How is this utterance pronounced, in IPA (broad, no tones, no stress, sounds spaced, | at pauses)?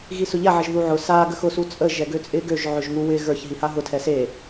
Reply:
ɣ i s ʊ ʎ a ʕ ɪ ʒ ð u ʕ ʊ s a ɡ ə x ʊ s u t͡sʼ ə ʒ ɛ ɡ ø t͡sʼ ɪ ɡ ø ʒ ʕ ø ʒ ŋ u w ɪ ɣ ə˞ ç ɦ i h a ɦ ʊ tʰ ɛ s e